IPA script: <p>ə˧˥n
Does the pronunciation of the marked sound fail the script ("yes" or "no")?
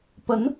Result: no